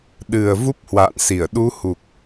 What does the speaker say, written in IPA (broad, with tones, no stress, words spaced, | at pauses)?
ɗɨ˨˩ə̯ vu˦˥p̚hwa̰ː˧˨nsi˧˩ə̯ ɗu˨˦hu˨˩k̚